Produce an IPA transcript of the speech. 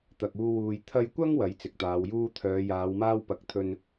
t̪ ɐ˨ k̚ uː˧ w uː˨ j t̪ʰ ɐ˧ j kʷ ɐ˥ ŋ w ɐ˨˥ j t͡s ɪ˨ k̚ t̪ aː˨˧ w j uː˥ t̪ʰ œː˨˧ j aː˨˧ w m aː˥ w p ɐ˨˥ k̚ t̪ʰ ɵ˧ n

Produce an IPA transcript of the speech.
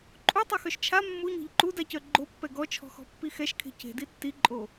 ǃʼ u tˤ a x œ ʃ t͡ʃʰ a mː u ɲ ɔ̤ ʎ ǃ u d a c œ ɡ͡ǃ o pː ɛ ɡ ɔ t͡ʃʰ ɔ̤ x ɔ̤ pː i x ɛ ʃ kʰ e̤ c e̤ d i tː i ǃʼ o

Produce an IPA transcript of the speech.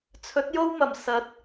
t͡sʰ ɵ˨˥ t̚ j o˥ w m ɐ˨˩ m s ɐ˨˥ t̚

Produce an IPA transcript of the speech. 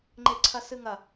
ŋ͡ǃ e ǀʰ ɐ s ɨ ŋ ɐ

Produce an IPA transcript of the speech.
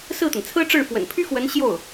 s ɹ̩˥˩ t̪ ə˩ n t͡sʰ ɹ̩˥ ʈ͡ʂ ɻ̩˥˩ f w ə̰˨˩ n pʰ y˥ x w ə˧˥ n ɕ j o˥˩ ʊ̯

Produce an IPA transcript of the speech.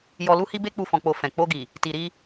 j ɔ˧ l u˦ h i˦ b e˦ k͡p u˦˨ f ɔ̃˧ k͡p o˧ f ɛ̃˨ k͡p o˧ ɡ i˨ | t i˨ ɾ i˧

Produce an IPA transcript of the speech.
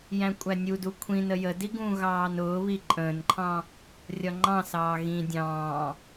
j æ̃ kʷʼ æ nʲ u d u kʷʰ ĩ n ə j ə d i ɡ ũː ɣ ɑː n ʊː β i ǃʼ ə̃ː n ǃʰ ɑ̃ | rʲ ɒ ŋ͡ǃ ɑ̃ s ɑː ɣ ĩ dʲ ɑ̃ː

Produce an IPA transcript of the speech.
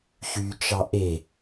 ç y t͡ʃ ɑ ʔ e

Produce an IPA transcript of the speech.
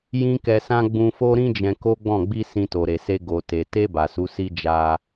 j ĩ˦ k ɛ˧ s ã˦ ɡ͡b ũ˧ f o˦ ɾ ĩ˦ d͡ʒ ɛ̃˧ k o˦ ɡ͡b ɔ̃˦˨ ɡ͡b i˧ s ĩ˧ t o˨ ɾ e˨ s e˧ ɡ o˨ t e˨ t e˧ b a˨ s u˨˦ s i˦ d͡ʒ a˧

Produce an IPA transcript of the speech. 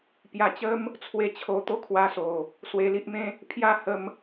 p j a˧ t͡ɕ ə˦ m | t͡sʰ w e˥˧ t͡ɕʰ o˧ t̪ o˦ kʰ w a˧ s o˨˩ | s w e˧ l i˦ ʔ m ẽ˦ | pʰ j a˥˧ h ə˧ m

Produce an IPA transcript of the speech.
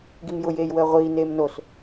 ɡ i m j ʊ j eː j w əː ʁʷ iː n eː m n o s

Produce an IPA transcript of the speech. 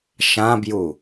ʃ ã b j u

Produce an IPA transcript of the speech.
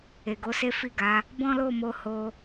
e˨ ɡ o˨˦ s e˦ f i˦˨ ɡ a˨˦ | b ɔ̃˦ l o˦˨ m o˧ h o˧

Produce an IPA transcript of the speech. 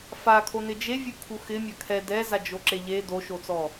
f a kʰ o n ɪ d͡ʒ e vʲ u kʰ u x ɪ mʲ a kʰ ɛ d ɛ z a d͡ʒ o ǁ e ʎ e d o ʃ o t͡s ɔ

